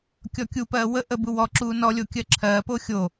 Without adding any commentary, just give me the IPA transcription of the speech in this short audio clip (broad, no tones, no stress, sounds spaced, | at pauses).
kʲ ɔ kʲ u p ɜː w ə ʔ ə b u w ɔ ǁ uː n ɔ lʲ o kʲ ɜ ǁʰ ɜː p o xʲ o